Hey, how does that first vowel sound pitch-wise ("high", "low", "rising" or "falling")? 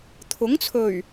rising